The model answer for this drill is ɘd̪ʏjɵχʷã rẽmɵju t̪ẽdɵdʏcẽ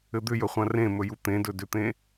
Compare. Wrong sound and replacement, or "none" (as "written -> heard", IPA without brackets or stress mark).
c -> t̪